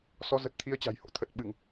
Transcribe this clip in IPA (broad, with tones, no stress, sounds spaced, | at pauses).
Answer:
s ɔ˨˦ z ə˨˩ t̚ t̪ʰ i˧ ə̯ t͡ɕ a̤˨˩ j h o̰˧˥ t̪ʰ ə˨˩ t̚ ɓ ɨ˧˩˨ ŋ